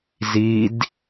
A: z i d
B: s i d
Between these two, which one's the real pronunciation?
A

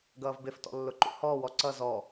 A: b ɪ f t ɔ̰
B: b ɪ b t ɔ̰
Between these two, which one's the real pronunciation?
A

